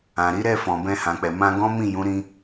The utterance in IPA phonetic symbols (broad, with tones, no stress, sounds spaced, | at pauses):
ã˨ ɾ i˨˦ ɾ ɛ˦˨ f ɔ̃˨ b ɛ̃˧ h ã˨ k͡p ɛ˨ m ã˧ ɡ ɔ̃˦ m ĩ˦˨ j ũ˨˦ ɾ ĩ˧